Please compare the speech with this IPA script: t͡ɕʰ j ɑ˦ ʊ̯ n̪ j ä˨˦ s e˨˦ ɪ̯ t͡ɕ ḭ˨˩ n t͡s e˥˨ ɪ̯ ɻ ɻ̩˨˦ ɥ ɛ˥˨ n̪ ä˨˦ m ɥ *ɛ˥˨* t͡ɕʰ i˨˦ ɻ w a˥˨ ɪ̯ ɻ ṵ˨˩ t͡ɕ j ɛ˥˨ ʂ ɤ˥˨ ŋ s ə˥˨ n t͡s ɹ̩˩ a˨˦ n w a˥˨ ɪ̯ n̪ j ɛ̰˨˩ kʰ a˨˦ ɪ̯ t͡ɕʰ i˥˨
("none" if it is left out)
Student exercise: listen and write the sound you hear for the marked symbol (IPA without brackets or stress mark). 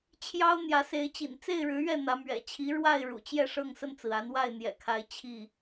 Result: ɛ̰˨˩